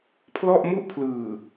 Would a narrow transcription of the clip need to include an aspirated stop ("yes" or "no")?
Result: yes